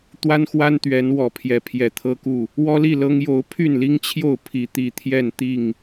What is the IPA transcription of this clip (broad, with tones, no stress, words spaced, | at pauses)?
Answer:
t̪wa˦nxwa˦nt̪ɥɛ˨˦n wɔ˨˩pʰjɛ˨˦ pʰjɛ˨˩t̪ʰɤ˦ku˥˨ | wɔ˦li˥˨lɤ˦ŋ jo˨˦ʊ̯pʰy˥˨nli˦ŋt͡ɕʰjo˥˨ʊ̯ pʰi˨˦t̪i˨˩t̪ʰjɛ˥˨n t̪i˥˨ŋ